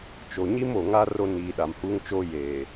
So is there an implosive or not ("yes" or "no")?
yes